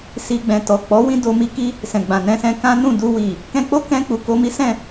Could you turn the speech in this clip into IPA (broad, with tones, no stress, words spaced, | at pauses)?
si˧ ɡ͡bɛ̃˨ tɔ˨k͡pɔ˨˦ wĩ˦do˧ mi˦ki˦ | sɛ̃˨ɡ͡bã˨ nɛ̃˧sɛ̃˧ kã˦nũ˦˨du˧ wi˨ | kɛ̃˧k͡po˦kɛ̃˧k͡pu˨ ko˧mi˦sɛ̃˦˨